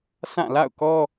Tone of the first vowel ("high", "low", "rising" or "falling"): falling